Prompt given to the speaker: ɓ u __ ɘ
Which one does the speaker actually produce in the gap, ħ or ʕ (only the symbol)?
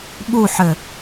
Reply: ħ